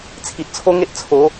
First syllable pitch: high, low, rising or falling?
low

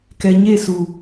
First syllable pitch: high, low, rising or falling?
low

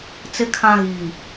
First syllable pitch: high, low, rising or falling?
low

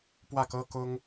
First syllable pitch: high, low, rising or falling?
falling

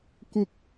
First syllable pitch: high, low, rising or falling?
high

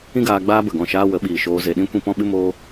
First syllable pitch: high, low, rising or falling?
high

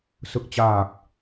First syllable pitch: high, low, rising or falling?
low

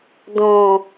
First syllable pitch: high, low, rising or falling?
low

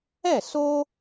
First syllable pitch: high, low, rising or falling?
falling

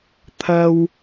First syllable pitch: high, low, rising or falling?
low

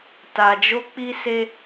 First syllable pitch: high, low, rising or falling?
low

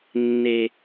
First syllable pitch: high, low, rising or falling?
low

